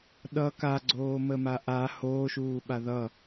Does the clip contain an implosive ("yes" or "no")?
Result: yes